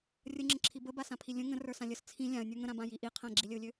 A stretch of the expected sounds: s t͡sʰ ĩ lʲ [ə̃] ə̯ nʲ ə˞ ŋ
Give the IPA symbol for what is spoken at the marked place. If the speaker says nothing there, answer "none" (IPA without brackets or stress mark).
ã